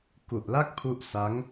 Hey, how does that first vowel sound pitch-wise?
low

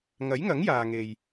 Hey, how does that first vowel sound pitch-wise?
rising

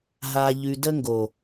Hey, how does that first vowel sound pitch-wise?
low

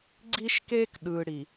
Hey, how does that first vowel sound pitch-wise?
high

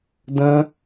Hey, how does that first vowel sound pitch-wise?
high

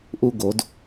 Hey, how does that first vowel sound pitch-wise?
high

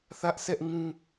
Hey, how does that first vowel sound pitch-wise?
high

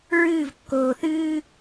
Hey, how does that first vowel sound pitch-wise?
falling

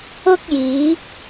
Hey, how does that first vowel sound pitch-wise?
high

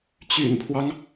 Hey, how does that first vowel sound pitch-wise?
low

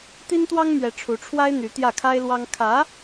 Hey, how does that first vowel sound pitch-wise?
high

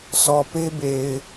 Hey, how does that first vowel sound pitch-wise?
low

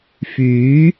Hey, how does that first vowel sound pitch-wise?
rising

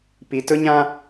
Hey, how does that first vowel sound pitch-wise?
low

